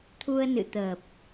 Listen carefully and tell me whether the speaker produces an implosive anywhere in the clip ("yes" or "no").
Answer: no